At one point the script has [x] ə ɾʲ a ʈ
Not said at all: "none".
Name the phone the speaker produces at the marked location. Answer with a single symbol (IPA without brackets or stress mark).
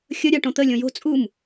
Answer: xʲ